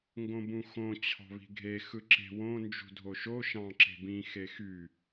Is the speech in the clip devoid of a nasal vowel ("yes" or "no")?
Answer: no